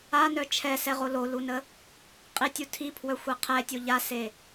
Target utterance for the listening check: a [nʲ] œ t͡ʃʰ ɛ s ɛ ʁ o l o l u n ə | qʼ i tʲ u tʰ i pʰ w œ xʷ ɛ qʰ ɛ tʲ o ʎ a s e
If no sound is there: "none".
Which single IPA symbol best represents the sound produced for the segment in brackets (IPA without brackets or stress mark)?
n